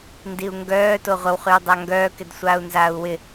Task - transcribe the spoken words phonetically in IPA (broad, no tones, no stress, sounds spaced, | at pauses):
n d i u̯ ŋ ɡ œː t o ʁʷ ə w χ y w dˤ a ŋ ɡ œː k ɪ d sʷ aː u̯ n z aː u̯ w ɪ